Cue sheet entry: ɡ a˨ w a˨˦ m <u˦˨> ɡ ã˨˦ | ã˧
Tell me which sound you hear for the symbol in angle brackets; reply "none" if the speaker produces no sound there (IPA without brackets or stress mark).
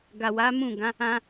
ũ˦˨